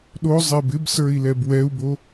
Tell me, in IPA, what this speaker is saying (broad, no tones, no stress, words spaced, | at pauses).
ɗozˤeb ɪbsə˞i̯lɛb wɛu̯bo